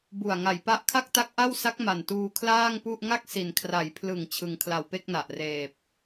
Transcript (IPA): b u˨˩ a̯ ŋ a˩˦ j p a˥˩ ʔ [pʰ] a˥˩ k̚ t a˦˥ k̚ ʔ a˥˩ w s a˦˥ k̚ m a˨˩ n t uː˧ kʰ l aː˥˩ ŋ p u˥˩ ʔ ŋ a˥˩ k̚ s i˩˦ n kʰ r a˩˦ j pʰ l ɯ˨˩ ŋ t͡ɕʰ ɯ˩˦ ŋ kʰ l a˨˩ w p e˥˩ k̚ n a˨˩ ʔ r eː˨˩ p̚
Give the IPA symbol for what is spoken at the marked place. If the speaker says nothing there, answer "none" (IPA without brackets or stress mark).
kʰ